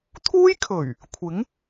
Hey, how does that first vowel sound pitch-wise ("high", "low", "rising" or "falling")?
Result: high